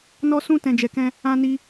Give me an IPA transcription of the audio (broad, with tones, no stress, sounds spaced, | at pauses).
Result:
n ɔ˧ s ũ˧ t ɛ̃˨ d͡ʒ ɛ˨ k ɛ̃˧ | ã˧ n i˧